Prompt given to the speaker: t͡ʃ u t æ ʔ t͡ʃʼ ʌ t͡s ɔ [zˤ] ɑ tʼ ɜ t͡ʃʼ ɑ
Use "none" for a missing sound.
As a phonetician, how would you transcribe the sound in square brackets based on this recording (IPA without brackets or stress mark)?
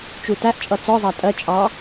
zˤ